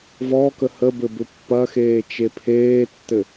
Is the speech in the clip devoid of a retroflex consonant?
yes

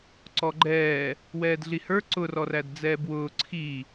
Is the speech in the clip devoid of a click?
no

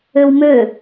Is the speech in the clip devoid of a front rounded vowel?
no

